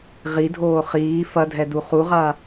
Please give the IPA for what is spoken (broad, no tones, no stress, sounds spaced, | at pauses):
ʁ i dʱ oː χ iː f ɐ dʱ ɛ d u χ u ʁ a